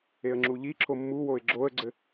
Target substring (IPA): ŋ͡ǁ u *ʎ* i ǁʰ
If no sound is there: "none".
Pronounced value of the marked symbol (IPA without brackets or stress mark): ʎ